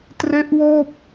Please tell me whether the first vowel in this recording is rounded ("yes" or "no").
no